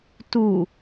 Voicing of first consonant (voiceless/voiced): voiceless